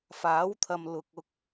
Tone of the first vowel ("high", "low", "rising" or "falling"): rising